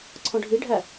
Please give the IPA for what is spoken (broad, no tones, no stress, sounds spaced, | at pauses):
ǀʰ ɔ̃ ɖʱ i ɖʱ æ